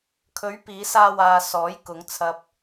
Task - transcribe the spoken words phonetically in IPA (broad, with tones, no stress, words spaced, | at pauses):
kʰɵ˨˥ɥ piː˨˧saː˧waː˨ sɔː˨˥jkʊ˨˧ŋt͡sʰɐ˧p̚